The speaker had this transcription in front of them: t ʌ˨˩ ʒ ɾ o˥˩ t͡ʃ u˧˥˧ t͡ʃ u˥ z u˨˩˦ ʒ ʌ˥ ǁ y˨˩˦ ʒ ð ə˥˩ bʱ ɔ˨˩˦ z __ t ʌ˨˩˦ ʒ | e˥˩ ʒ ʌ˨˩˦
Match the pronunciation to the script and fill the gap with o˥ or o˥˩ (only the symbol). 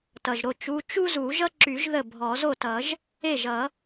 o˥˩